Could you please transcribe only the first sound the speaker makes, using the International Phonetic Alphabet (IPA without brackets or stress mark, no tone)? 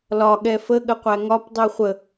l